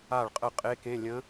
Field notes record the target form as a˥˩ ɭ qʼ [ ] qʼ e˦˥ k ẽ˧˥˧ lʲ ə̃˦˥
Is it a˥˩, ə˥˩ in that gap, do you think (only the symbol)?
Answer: ə˥˩